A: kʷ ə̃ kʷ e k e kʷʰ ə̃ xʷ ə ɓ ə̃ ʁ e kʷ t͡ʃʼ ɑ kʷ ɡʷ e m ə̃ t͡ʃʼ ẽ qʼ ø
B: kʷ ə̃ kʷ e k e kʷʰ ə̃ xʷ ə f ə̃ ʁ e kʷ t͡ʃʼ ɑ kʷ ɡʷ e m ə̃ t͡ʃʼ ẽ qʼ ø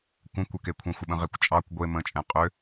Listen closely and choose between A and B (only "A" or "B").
A